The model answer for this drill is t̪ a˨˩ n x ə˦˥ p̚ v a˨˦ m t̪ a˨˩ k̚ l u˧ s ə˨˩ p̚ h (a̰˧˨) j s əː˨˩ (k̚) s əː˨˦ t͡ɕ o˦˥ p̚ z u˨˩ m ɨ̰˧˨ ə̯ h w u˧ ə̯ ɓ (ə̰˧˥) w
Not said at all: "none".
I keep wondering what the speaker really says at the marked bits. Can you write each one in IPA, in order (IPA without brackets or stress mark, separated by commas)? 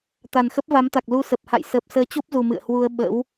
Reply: a̰˧˨, p̚, ə̰˧˥